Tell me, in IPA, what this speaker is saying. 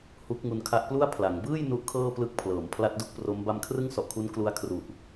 h u˦˥ k̚ ŋ u˧ n kʰ a˦˥ ʔ p l u˥˩ a̯ pʰ l a˩˦ ŋ b ɯː˥˩ j n u˦˥ ʔ kʰ ɤː˥˩ p l ɯ˦˥ k̚ pʰ l ɤː˩˦ m pʰ l a˦˥ t̚ d u˦˥ k̚ p r o˦˥ m b a˧ m kʰ r ɯ˥˩ ŋ s ɔ˨˩ ʔ kʰ u˦˥ n k l u˦˥ a̯ kʰ r u˨˩ ʔ

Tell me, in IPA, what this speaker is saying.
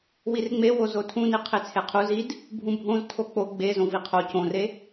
w i r ŋ͡m e w o z o tʰ ũ n i qʰ e t͡sʰ e qʰ u z i d | bʱ ũ bʱ õ z tʰ o k͡p o ɡ͡b e z õ v i qʰ o c õ r e

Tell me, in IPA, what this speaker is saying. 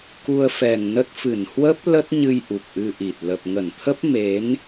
k u˧ ə̯ f ɛ˨˩ ŋ n ə˦˥ t̚ f ɨ˧˩ n h w ə˦˥ p̚ l ə˦˥ t̚ ɲ ɨ˧ j ʔ u˨˩ k̚ ʔ ɨ˧ ʔ i˨˩ t̚ l ə˨˩ p̚ ŋ ə˧˩ n t̪ʰ ə˦˥ p̚ m e˨˦ n

